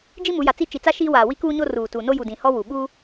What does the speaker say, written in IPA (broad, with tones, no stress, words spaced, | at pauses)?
d͡ʒi˦mu˨˦ja˨t͡si˦ t͡ʃi˨t͡sa˦ ʃiː˦waː˨ wi˦kuː˦ɲo˦ ruː˨tu˨ no˦ ju˨dĩ˨ hɔ˦wu˨ ɓu˦